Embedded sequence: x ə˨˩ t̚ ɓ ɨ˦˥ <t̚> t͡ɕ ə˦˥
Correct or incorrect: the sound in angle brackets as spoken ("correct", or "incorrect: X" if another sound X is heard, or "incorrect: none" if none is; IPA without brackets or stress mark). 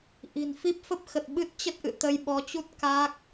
correct